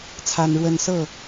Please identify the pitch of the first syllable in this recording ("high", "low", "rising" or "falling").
high